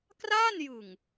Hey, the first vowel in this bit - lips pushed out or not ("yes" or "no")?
no